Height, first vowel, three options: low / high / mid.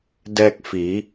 mid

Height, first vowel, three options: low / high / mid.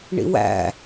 high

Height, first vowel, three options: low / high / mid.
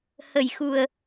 mid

